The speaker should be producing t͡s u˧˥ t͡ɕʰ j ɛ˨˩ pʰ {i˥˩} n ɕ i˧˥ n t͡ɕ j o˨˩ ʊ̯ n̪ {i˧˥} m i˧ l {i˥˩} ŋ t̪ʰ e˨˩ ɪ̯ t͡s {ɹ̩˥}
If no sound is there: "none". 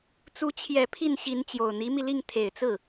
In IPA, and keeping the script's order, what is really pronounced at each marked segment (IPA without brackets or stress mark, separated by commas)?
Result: i˥˩, i˧˥, i˥˩, ɹ̩˥˩